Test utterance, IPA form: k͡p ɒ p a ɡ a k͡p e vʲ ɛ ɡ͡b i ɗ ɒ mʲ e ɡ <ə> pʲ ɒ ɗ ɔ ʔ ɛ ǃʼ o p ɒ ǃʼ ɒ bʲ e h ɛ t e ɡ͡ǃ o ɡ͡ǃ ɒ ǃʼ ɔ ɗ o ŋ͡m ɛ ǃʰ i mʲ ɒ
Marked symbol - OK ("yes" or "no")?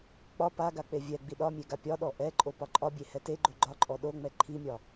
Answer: no